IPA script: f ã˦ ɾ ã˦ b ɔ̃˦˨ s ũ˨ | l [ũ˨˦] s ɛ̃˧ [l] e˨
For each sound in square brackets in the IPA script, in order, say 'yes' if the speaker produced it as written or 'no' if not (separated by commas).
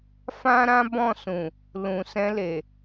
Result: no, yes